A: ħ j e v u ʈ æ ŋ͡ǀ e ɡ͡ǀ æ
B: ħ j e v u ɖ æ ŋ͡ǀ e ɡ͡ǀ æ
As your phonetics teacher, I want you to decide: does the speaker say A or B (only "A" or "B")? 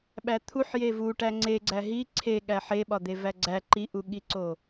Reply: A